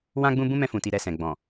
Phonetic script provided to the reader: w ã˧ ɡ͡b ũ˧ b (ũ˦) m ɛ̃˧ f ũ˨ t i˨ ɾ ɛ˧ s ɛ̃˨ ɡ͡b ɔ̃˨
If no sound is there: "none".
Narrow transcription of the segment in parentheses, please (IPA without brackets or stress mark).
ũ˦